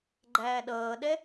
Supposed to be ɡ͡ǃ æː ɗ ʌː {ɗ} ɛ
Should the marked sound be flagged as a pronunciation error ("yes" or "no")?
no